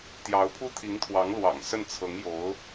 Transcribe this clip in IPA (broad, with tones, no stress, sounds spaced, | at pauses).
t̪ j ɑ˧˥ ʊ̯ pʰ u˥ t̪ʰ i˧˥ ŋ t̪ʰ w ɑ˧˥ ŋ l w ɑ̰˨˩ ŋ s ə˥˩ n t͡sʰ ɤ˧˥ ŋ j o˧˥ ʊ̯